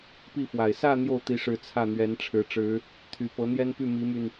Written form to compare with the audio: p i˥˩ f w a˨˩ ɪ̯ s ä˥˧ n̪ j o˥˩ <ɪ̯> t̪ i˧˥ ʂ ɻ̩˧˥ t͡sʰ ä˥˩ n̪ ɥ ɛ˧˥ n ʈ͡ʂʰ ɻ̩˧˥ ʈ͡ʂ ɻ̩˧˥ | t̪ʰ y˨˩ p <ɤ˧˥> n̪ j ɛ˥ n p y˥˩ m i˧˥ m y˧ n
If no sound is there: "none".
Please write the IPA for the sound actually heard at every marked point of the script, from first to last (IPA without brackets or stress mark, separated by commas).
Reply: ʊ̯, ɤ˧˥